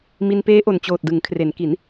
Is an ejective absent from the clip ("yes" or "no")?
yes